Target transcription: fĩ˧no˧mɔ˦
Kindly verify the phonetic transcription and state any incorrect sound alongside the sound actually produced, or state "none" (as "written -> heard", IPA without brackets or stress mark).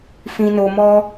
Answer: none